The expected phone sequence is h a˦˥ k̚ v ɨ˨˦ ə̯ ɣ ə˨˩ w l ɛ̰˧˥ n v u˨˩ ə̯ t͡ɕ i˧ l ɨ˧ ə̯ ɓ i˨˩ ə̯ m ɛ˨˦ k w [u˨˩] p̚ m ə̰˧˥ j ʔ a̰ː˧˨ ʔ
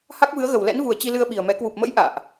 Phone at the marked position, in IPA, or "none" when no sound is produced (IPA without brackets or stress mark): u˨˩